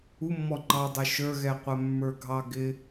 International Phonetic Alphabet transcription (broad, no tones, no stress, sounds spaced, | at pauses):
u mː ɔ ŋ͡ǃ ɑ dˤ ʌ ʃ ə˞ ɣ ɛ qʷ æ mː ə˞ ɡʱ ɑ ɡ ɪ